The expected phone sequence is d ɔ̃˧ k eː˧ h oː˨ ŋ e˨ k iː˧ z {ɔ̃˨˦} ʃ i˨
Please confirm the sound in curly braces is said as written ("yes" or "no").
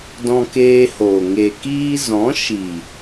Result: yes